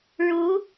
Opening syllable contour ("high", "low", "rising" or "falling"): rising